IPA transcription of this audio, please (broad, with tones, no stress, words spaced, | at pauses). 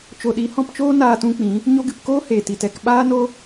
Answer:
t͡ʃo˨ɗi˨˦hɔ̃˧pt͡ʃoː˦ naː˧tũ˧k͡pĩ˨˦ | ɲo˧ɡɨ˨pkoː˦ heː˨ti˨tɛ˧k ɓaː˦no˦